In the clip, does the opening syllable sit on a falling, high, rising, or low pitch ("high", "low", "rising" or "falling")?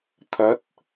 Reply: rising